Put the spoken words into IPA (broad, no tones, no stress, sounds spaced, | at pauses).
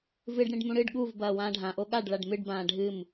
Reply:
v ɨ ɖ ɽ ĩ ɖ m ũ ɽ ɨ ɖ ɠ u v b ɐː w ãː ɖʱ ã ʔ o ɠ a ɖ ɭ a ɖ m ɨ ɖ b ãː ɖʱ ɨ m